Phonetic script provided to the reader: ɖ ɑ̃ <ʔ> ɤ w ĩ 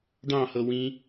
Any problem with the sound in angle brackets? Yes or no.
yes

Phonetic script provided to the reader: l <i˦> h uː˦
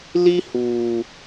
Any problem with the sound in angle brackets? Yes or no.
no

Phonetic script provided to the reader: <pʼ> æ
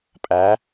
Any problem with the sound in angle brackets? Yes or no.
no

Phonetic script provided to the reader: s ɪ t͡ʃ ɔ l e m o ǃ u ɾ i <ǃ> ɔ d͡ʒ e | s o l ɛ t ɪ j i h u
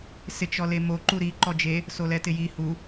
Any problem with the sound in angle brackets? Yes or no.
no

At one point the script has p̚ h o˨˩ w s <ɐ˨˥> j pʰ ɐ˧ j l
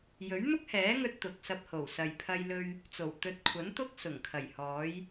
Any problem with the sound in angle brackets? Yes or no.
yes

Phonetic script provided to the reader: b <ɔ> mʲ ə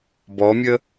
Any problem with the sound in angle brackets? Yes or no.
no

